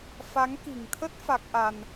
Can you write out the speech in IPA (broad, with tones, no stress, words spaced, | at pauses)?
fa˨˦ŋki̤˨˩ŋt̪ʰə˦˥t̚ fa˦˥k̚ʔa˧n